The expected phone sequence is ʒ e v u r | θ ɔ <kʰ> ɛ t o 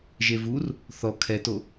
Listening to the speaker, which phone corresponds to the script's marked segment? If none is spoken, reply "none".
kʰ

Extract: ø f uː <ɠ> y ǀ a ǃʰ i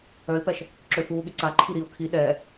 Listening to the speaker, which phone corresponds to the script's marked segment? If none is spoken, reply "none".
ɠ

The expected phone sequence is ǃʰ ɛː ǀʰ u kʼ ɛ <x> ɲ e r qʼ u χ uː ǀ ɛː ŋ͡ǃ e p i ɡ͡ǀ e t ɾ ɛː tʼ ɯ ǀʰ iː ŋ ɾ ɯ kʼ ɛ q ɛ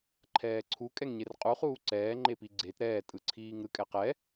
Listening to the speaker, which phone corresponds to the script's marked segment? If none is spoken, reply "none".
ŋ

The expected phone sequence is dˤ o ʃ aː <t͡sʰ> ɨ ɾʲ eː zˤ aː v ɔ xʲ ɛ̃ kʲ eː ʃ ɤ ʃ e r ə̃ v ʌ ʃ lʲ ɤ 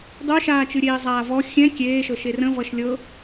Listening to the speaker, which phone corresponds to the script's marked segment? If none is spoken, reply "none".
t͡ʃ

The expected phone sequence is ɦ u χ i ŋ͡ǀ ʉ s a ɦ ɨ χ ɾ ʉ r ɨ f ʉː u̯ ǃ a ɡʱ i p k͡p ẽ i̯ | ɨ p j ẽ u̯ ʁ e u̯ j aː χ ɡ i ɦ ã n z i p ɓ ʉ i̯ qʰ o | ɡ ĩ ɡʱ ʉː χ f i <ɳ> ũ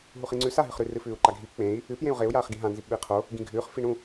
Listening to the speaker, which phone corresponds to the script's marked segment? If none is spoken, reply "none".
ɳ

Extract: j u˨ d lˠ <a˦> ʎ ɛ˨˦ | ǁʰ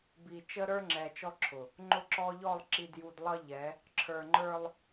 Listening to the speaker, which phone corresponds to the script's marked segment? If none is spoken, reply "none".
ʌ˦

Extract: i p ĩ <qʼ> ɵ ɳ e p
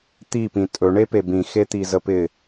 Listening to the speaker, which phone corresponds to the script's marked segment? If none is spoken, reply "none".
tʼ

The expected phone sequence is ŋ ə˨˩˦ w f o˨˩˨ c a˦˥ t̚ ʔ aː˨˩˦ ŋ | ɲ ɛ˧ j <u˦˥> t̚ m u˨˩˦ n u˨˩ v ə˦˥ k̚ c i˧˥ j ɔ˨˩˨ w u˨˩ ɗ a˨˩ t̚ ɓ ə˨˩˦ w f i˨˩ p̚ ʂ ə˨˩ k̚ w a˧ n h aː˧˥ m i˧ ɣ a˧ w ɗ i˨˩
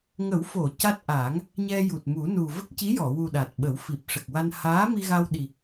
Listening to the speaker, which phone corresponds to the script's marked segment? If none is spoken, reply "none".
u˨˩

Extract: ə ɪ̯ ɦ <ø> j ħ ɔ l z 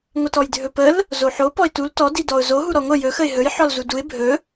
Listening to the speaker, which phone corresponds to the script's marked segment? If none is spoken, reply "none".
ɵ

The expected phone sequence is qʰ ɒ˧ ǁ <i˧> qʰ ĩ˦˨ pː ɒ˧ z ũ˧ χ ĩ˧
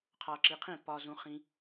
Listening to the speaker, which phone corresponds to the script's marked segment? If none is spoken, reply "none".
i˧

